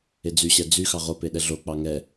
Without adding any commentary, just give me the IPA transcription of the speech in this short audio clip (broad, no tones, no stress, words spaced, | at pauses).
ed͡zy ɕɛd͡zy xɑʁopeɗɛ ɮok͡pɑ ŋɛ